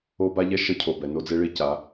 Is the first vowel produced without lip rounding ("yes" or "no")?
no